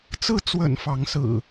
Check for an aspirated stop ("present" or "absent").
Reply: absent